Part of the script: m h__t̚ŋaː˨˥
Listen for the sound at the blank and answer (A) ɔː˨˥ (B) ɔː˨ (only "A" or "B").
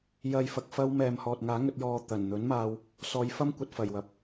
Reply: B